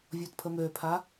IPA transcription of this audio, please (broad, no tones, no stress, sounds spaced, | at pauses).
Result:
vʲ ɔ t pʰ ə m ø pʰ a